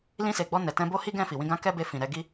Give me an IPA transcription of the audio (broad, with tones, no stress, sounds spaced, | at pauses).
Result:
l ĩ˧ s e˨ ɡ͡b ɔ˧ n ɛ˨ t ɛ̃˧ b o˦ h i˦ ɡ ɛ̃˦˨ f i˨ w ĩ˧ ɡ ã˦ k ɛ˦ b e˧ f ĩ˨ ɾ ɛ˨ ɡ i˧